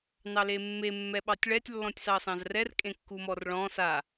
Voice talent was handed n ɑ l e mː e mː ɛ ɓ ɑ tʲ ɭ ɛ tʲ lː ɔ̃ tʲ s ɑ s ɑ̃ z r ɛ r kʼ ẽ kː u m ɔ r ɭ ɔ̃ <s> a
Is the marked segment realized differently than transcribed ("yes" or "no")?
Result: no